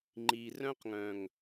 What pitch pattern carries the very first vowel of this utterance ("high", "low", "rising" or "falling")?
low